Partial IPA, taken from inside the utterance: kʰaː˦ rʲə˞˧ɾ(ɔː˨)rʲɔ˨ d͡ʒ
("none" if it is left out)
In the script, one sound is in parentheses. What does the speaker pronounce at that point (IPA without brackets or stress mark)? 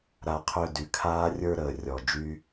əː˨